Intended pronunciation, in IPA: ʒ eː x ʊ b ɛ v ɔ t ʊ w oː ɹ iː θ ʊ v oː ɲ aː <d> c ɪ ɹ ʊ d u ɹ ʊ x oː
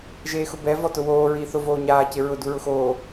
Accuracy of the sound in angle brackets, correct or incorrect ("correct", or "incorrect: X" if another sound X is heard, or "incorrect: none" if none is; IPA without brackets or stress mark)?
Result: incorrect: none